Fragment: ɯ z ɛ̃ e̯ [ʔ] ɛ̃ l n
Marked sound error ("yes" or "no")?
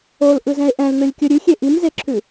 no